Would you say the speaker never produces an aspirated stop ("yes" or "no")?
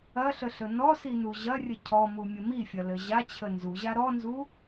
no